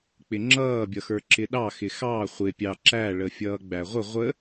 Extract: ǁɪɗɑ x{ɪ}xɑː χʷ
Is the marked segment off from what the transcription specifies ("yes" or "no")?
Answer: no